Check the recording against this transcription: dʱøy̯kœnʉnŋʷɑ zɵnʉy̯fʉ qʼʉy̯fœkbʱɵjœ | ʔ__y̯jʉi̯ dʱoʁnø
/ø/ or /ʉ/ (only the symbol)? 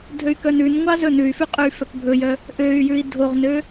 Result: ø